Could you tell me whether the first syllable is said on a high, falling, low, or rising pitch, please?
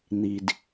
high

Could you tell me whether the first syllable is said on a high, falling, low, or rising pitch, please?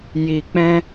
low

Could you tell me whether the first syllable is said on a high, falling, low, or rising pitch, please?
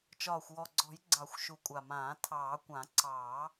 low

